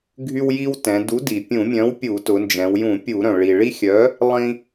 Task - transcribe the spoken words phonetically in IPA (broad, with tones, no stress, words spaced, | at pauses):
ɡʱy˦wji˦wtɛ̃˩˧ du˨˥di˩pʲũ˧˩˧mʲœ̃˨˥w pʲu˧˩˧tʊ˩˧nd͡ʒɛ̃˩˧w jũ˧˩˧pʲu˧˩˧ɾœ̃˩ ɭi˩ ɭi˦xʲœ˨˥ | lˠĩ˦